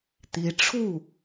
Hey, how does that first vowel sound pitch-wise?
rising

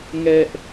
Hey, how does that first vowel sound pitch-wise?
high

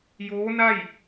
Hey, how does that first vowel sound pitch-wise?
rising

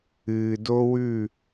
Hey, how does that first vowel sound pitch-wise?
low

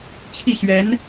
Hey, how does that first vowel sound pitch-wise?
falling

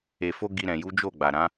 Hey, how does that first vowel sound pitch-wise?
low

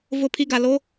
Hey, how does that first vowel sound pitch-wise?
falling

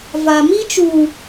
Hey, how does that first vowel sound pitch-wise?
low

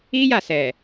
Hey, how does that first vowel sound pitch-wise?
high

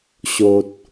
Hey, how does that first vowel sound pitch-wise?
low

